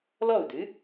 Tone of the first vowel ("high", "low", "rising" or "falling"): falling